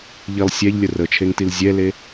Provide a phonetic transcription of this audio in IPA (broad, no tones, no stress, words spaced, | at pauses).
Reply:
ʎilˠ sʲɛʎlʲə rət͡ʃʰeŋtil zʲɛle